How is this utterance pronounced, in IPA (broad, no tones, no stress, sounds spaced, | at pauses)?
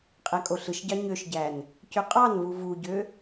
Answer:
qʼ æ kʼ o ɬ ɯ ʃ ɟ ɑ ɲ ø ʃ ɟ æ n | c ø qʼ ɑ n v u v u ɟ ø